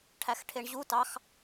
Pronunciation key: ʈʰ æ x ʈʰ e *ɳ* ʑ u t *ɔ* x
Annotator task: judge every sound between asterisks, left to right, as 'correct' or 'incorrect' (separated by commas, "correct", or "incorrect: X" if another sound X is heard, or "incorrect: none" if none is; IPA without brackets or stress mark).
correct, incorrect: ɑ